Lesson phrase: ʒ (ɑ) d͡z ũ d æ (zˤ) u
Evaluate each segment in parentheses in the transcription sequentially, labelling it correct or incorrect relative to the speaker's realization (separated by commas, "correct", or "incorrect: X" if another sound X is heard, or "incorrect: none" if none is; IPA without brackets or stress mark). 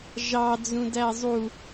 correct, correct